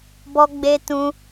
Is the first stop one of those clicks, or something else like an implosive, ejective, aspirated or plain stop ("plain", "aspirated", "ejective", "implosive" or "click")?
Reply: plain